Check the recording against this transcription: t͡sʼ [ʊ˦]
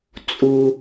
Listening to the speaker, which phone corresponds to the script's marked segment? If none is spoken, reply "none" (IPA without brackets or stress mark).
u˦